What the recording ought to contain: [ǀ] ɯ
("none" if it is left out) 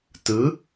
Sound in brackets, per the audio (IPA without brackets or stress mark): t